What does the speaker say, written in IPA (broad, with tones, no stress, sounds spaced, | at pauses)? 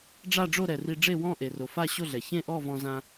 ɖ͡ʐ a˥˧ ɖ͡ʐ o˥˧ ɾ ɛ˩ r i˧ ɖ͡ʐ e˥˧ w ɔ̃˥˧ ʔ e˩ r o˩ f a˥˧ ɕ o˥˧ ɮ ɛ˩ ç ẽ˥˧ ʔ ɔ˥˧ v ɔ̃˧ z ã˧